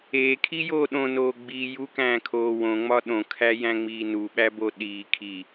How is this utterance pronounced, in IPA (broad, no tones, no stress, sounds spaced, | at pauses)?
eː kʰ i j oː ɗ õ n oː ɡ͡b iː j u k æ̃ː kʰ oː w õ ŋ͡m ɒ ɗ õ kʰ æ j æ̃ ŋ͡m iː n u ɓ æ b o ɗ iː kʰ i